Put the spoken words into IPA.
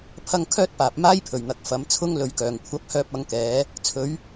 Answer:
pʰ ɐ˥ ŋ kʰ œː˥ t̚ p aː˨ p̚ m aː˥ j pʰ ɵ˨˩ ɥ n̪ ɐ˨ k̚ f ɐ˨˧ m t͡sʰ ʊ˥ ŋ l ɵ˨ ɥ k œː˨˩ ŋ kʷʰ ɐ˨˥ p̚ h œː˧ p̚ ɐ˨˥ ŋ k ɛː˨˥ | t͡sʰ ɵ˨˧ ɥ

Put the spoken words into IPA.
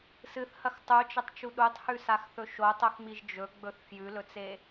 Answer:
s ɨ θ h ɐ x tˤ u t͡ʃ ɐ tˤ t͡ʃ u ɗ u tˤ h ʉ s a x θ ɵ ʃ o tˤ o x m i ʒ d͡ʒ ɵ ɡ͡b ɵ θ f j ʉ l ɵ t͡s e

